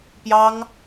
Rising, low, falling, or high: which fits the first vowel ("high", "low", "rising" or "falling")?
high